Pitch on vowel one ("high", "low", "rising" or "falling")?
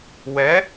rising